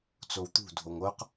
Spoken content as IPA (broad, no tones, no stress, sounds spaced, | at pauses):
t͡s o w t̪ ṳ dʱ o ŋ o q